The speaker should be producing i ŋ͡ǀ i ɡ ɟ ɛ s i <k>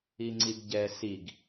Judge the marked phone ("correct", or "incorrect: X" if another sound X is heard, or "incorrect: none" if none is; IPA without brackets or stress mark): incorrect: ɡ